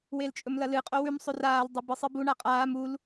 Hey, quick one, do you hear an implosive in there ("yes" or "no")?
no